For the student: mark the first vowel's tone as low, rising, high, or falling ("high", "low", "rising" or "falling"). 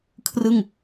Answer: falling